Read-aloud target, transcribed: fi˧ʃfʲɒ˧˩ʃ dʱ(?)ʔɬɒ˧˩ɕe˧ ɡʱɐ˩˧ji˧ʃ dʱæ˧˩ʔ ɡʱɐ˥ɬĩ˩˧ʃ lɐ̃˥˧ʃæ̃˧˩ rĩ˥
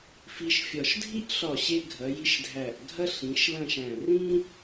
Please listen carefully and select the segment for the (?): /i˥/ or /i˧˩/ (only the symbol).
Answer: i˥